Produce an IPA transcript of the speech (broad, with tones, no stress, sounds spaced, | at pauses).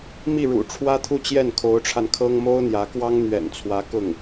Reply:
m i˥˩ ɻ ṵ˨˩ ʈ͡ʂʰ w ä˥ t̪ʰ u˥˧ t͡ɕ j ɛ˥˩ n kʰ o˧˥ ʊ̯ ʈ͡ʂʰ a˧ n kʰ ɤ˥ ŋ m o˥ ʊ̯ n̪ j ä˧˥ k w ɑ˥ ŋ n̪ ɥ ɛ̰˨˩ n t͡sʰ w ä˧˥ k ʊ˥˩ ŋ